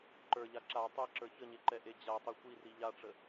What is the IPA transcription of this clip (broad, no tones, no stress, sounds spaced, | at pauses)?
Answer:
ǃ ə˞ ʎ a ǁ a tˤ e ǁ ə˞ ç ə ɲ e ǃ ɛ ʔ e d͡ʑ a tˤ i xʷ i r i ʎ a ʈ͡ʂ ə